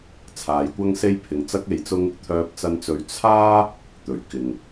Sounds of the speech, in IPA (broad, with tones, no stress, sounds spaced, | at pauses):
t͡sʰ aː˨˧ j kʷ ɐ˥ ŋ s e˥ j pʰ ɪ˧ ŋ t͡s ɐ˥ k̚ e˧ j t͡s ʊ˥ ŋ | t̪ʰ œː˧ p̚ t͡s ɐ˧ n t͡s ɵ˧ ɥ t͡sʰ aː˥ | t̪ ɵ˨˩ ɥ k ɪ˨ ŋ